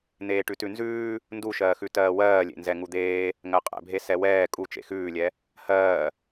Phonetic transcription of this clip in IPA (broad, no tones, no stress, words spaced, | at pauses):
n̪eːʈʉtʉnzʉː | nduʃɜːxʉ tɜːwɜːlʲḛnzɛ ŋud̪eː | ŋɜqʼɛ̰bʱe sɛwɛː kʼu t͡ʃḛxʉːlʲɛ | hɜː